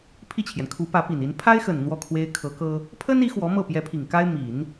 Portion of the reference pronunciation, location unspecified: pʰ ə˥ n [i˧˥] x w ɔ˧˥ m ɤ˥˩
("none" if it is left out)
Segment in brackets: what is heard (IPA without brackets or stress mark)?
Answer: i˧˥